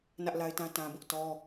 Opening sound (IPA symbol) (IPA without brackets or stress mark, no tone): n